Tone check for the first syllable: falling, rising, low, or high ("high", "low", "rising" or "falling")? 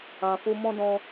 low